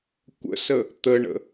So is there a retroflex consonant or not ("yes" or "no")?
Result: yes